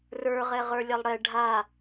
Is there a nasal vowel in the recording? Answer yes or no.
no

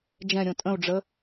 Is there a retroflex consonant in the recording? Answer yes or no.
yes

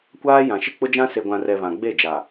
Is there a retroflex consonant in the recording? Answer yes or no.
no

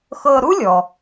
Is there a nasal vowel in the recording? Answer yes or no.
no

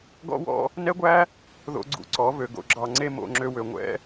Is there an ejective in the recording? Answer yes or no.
no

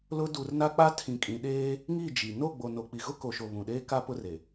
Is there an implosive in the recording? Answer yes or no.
yes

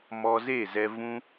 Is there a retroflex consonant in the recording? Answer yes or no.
no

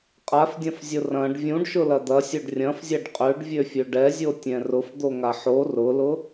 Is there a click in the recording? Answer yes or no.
no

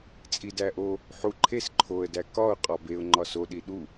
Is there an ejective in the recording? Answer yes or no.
yes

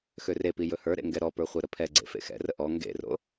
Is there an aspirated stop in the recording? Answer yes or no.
yes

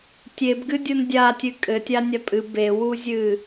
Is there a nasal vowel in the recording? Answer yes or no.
no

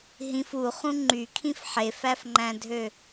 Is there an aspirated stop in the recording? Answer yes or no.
yes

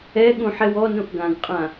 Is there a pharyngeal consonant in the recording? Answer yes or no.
yes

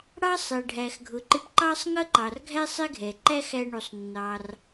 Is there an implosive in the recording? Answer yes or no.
no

